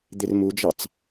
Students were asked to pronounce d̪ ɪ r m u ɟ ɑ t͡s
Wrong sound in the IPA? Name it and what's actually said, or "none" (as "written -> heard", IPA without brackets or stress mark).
ɟ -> d͡ʒ